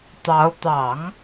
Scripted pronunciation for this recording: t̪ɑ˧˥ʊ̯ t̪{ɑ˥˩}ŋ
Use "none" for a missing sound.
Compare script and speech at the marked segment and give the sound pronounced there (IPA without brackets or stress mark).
ɑ˨˩˦